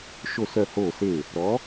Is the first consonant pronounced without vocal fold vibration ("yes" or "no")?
yes